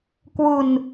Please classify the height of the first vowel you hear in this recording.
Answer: high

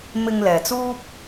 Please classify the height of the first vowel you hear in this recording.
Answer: high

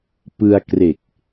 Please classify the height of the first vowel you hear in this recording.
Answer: high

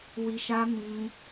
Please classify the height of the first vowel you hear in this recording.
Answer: high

